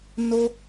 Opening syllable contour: high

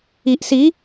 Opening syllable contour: low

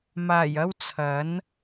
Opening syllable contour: low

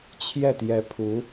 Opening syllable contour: falling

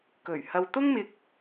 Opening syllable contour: low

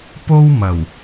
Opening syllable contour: high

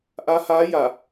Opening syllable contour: rising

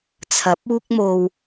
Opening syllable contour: rising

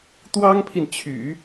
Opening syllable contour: high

